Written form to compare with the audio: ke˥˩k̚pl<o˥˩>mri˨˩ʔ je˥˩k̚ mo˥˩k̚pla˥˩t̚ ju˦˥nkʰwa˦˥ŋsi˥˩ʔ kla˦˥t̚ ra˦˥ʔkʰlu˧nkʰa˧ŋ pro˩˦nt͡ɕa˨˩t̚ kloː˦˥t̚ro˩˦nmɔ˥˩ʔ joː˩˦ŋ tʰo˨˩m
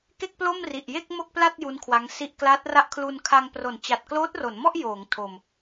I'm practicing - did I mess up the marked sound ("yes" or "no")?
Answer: no